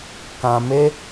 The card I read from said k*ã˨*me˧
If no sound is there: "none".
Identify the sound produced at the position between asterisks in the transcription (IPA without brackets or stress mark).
ã˨